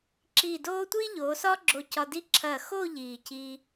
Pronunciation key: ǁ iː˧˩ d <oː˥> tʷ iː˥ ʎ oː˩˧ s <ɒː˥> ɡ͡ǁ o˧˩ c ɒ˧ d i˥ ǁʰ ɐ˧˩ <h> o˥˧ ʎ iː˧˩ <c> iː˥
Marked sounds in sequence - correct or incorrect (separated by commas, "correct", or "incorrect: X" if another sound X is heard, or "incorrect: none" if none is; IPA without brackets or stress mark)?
correct, correct, incorrect: x, correct